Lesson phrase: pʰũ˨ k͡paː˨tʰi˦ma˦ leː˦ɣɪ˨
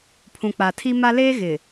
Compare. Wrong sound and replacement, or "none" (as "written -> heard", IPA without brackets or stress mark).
aː˨ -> a˨